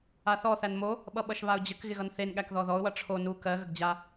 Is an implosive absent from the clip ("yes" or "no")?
no